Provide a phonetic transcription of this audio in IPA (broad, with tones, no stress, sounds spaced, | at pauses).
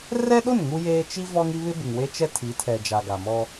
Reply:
r ɛ˦ ɗ o˦˨ n ŋ u˦ j eː˦ t͡ʃ i˦ v ɔ˦ ŋ i˦ β ɪ˦ b ɪ˨ ŋ w e˦ t͡ʃ ɛ˦ tʰ i˨˦ tʰ ɛ˨ d͡ʒ a˨ ɡ a˨ m ɔ˦